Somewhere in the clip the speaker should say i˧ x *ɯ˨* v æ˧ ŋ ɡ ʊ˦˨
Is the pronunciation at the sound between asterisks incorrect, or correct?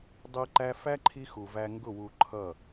incorrect